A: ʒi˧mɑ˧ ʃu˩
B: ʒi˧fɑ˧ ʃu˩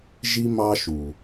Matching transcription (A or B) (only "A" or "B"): A